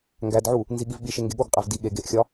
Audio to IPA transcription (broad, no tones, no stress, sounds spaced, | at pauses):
ŋ ɡ æ d ʕ u | n z i ɠ i v ɓ i ʃ e ŋ ɡ e ɠ o ɡ qʼ æ v d i ɠ e ɡ e ʔ xʲ ɒ